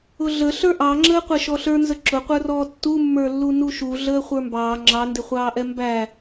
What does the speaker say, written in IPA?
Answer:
ʊɮə ɬə˞ʔɑŋ͡ǁəː qʷɛʃɔɬə˞nzə ǁʊqʷə˞rɔː tːumːə˞lːu nuʃu ɮəːχʷə˞mbɑː ŋ͡ǁɑndɪχʷɑːʔɛ mbæ

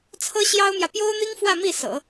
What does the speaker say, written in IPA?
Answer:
t͡sʰɤ˥ɕjɑ˥ʊ̯mjä˨ pjo˥ʊ̯n̪i˥ŋfwä˥˧ mi˥˩sɤ̰˨˩˦

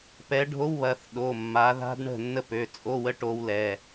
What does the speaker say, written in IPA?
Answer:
pɛ˨˦ɖʱo˧˥˧wβɐ˩˧˩θ ɗo˩˧˩mːa˨˦ða̤˦˥d ɳə̤˥˩ nːə˥˩pø˩˧˩t͡sʼo˧˥˧wə˦˥ ʈo˦˥wlɛ˩˧˩

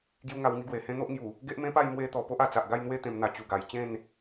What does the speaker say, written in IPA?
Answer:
ɡju˥˧ŋa˧w ŋi˧ɡwe˨˩hẽ˦ n̪o˦ʔŋju˨˩ | ɡe˦ʔmẽ˦pa˥˧j mwe˧t̪ɔ˨˩ po˦ʔa˨˩t͡sa˨ʔ ɡa˥˧jn̪we˥˧ t̪ẽ˧mn̪a˧ t͡ɕu˨˩ɡa˨˩jt͡ɕẽ˥˧n

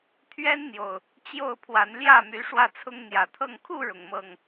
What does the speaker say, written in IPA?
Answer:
t̪ʰɥɛ˦nn̪jo˨˩ʊ̯ | t͡ɕjo˥˨ʊ̯pʰwa˨˦n ljä˥˨my˨˦ ʂwä˥˨t͡sʰʊ˦ŋ n̪jä˨˩t̪ʰɤ˥˨ŋ kʰu˥˨ɻʊ˩ŋmɤ˨˩ŋ

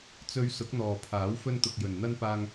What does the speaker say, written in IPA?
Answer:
t͡sɵ˨˧ɥ sʊ˨˥k̚n̪ɔː˨pʰaː˨˥w fɵ˧nt̪ʊ˨k̚jɵ˨n n̪ɐ˧npaː˧ŋ

